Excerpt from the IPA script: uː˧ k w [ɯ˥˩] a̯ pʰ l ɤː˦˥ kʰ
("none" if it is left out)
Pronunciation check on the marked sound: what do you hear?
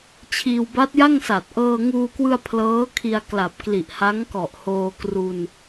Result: ɯ˧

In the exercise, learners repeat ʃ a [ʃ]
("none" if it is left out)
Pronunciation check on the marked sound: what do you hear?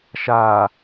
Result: none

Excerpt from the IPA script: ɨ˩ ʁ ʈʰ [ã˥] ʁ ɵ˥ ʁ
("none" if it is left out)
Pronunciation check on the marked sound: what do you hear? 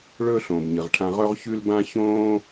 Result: ã˧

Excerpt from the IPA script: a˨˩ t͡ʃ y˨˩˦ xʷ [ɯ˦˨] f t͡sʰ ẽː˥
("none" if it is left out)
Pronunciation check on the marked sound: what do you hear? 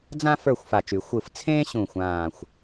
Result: ɯ˦˨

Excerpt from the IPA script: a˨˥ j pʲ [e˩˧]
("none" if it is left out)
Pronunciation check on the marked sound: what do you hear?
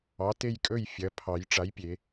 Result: e˩˧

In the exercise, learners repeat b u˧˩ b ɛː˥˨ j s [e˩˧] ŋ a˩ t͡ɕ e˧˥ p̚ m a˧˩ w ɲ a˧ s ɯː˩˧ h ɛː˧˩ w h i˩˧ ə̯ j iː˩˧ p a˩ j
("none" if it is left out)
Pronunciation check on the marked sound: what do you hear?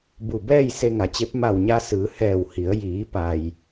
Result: e˧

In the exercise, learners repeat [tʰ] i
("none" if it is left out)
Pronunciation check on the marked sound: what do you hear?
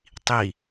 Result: tˤ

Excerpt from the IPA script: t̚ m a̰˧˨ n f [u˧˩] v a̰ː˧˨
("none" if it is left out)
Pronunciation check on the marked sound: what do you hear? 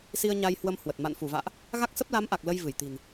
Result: u˧˩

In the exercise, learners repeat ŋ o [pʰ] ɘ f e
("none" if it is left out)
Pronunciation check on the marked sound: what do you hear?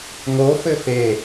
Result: f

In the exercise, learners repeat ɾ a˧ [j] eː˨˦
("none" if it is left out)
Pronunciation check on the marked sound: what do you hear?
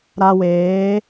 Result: w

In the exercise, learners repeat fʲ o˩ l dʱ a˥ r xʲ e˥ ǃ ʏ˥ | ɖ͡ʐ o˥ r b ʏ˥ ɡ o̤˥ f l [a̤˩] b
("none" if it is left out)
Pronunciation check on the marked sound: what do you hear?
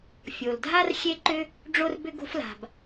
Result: a̤˩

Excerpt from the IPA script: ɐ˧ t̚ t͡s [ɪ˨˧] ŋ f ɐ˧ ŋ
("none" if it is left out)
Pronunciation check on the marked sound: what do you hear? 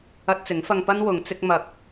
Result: ɪ˨˥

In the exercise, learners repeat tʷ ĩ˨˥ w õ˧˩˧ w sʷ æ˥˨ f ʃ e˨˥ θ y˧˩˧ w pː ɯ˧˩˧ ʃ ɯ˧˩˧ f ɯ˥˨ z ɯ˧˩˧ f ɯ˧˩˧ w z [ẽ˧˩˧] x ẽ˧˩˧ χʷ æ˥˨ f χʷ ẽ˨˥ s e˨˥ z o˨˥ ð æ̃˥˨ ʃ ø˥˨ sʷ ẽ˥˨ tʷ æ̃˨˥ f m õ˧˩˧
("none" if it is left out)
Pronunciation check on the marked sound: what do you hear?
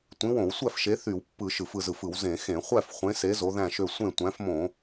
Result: ẽ˧˩˧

